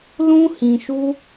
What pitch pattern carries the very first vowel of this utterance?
high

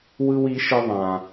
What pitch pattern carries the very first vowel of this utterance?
high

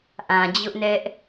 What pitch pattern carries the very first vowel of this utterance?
low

